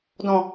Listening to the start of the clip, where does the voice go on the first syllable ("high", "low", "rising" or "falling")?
low